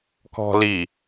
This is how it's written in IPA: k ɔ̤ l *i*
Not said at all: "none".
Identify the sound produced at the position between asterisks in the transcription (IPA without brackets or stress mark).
i